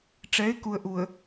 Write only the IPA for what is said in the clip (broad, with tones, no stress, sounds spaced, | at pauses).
ʈ͡ʂ ɛ˨˦ ɪ̯ k u˨ ə̯ ʔ u˨ ə̯